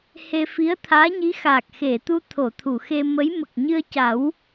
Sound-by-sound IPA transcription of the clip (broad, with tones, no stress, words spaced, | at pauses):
he˧fi˧˥ə̯t̪ʰaː˧˥ɲi˧˥ xaː˨˩k̚xe˨˩˨t̪u˧ t̪ʰo˨˩˨t̪ʰu˨˩˨xe˧mə˧˥j mə˨˩k̚ɲɨ˧ə̯ca˨˩˦w